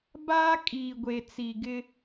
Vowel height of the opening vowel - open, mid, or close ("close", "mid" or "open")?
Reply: open